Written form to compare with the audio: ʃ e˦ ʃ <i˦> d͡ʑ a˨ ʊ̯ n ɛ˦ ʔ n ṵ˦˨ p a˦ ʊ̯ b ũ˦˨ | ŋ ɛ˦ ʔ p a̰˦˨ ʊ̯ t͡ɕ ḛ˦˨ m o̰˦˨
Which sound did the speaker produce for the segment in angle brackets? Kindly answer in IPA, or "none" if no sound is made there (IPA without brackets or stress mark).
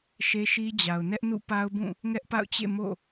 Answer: i˦